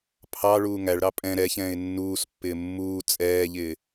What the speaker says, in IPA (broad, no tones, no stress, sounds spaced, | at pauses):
pʰ ɑ ɭ uː ŋ æ ɭ ɾ ɑ pʼ ɛ̃ ɾ ɛ ç ɛ̃ː ɪ̯ nː uː s pː ɪː mː uː t͡sʼ ɛː ʎ ɪː